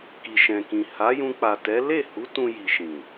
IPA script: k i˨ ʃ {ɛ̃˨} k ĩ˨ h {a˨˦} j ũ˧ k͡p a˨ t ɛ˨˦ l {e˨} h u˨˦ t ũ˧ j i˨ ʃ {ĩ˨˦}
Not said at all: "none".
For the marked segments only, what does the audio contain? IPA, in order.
ɛ̃˨, a˨˦, e˦˨, ĩ˨

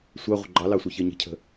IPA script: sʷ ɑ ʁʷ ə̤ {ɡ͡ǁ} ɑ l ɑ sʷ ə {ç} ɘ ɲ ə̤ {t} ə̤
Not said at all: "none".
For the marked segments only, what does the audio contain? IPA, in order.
ɡ͡ǃ, ç, cʰ

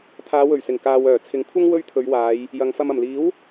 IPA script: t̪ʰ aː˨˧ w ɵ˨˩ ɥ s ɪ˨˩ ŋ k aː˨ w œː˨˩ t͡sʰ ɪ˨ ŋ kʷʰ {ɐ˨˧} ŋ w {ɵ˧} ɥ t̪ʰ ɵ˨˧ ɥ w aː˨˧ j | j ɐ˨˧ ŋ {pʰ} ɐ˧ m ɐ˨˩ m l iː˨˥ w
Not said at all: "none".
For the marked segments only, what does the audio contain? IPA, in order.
ɐ˥, ɵ˥, f

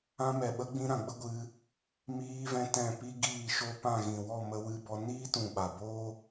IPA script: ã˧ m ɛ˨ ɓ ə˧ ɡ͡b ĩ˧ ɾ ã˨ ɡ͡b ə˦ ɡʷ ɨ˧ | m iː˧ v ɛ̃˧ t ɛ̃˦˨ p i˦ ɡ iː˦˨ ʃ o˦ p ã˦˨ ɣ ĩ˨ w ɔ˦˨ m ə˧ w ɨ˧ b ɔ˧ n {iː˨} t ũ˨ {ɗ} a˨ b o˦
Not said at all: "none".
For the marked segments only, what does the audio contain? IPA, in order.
iː˦, ɓ

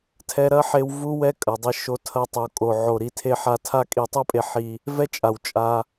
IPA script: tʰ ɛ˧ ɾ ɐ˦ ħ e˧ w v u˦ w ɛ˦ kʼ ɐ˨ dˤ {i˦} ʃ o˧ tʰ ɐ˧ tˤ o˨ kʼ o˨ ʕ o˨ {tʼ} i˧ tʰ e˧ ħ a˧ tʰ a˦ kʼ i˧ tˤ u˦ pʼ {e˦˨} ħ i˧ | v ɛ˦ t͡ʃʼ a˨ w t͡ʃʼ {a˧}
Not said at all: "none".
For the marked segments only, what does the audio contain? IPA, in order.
i˧, ɾ, e˧, a˧

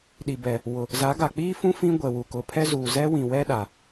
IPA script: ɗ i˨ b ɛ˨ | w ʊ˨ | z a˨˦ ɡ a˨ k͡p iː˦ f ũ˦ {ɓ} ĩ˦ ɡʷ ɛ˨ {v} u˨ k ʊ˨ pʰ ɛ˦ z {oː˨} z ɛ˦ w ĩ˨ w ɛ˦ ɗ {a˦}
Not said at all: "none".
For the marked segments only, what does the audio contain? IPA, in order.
f, w, uː˨, a˨

